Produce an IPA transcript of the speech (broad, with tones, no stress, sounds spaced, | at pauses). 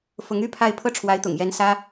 f ʊ˧˥ ŋ y˥ pʰ a˥˧ ɪ̯ pʰ ɤ˥˩ ʈ͡ʂʰ w a˧˥ ɪ̯ t̪ ʊ̰˨˩ ŋ j ɛ˧˥ n s ä˥